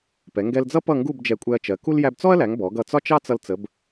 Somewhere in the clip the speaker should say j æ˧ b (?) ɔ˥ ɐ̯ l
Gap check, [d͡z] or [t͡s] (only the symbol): t͡s